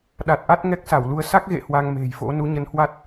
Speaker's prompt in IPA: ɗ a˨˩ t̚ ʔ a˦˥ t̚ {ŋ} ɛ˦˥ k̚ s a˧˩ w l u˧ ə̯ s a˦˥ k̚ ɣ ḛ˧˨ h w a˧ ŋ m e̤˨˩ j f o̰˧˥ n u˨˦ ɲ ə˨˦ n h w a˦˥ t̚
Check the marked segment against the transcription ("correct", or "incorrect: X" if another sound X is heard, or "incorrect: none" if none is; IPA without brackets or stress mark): correct